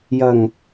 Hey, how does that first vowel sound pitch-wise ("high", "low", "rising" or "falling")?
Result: low